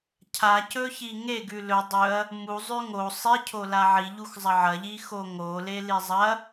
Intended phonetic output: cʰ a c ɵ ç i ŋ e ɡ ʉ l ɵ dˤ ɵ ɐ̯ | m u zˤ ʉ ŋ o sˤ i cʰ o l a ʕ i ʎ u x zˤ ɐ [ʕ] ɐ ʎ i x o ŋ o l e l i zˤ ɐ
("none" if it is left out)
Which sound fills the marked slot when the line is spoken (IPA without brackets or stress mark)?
ʕ